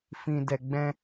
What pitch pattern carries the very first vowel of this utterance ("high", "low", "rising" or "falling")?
low